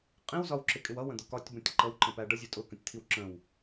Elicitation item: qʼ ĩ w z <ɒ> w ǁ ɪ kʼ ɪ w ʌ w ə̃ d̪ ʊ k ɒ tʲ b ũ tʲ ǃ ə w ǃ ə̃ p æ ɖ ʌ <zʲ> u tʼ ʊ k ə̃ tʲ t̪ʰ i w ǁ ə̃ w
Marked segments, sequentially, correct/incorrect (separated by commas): correct, correct